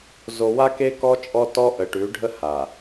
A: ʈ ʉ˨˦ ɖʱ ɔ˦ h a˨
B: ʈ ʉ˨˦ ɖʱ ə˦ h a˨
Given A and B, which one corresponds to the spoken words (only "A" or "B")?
B